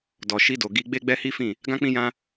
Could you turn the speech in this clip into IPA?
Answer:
d ɔ˨ ʃ i˧ d o˨ ɡ i˧ ɡ͡b e˦ ɡ͡b ɛ˦ h i˦ f ĩ˦˨ | ɡ ã˦ k͡p ĩ˦ j ã˦

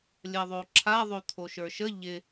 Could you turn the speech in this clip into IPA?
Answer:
lʲ ɜ ðˤ o ǁʰ a ðˤ o t̪ʰ o ʃ ə˞ ʃ ə ʎ ɪ

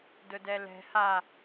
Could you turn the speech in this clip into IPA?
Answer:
d ʊ d ɛ l ɛ̤ h a

